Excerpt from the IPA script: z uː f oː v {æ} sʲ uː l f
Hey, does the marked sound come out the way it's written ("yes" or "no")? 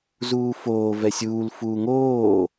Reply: no